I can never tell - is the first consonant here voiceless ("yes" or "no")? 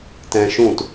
yes